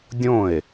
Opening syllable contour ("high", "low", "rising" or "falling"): falling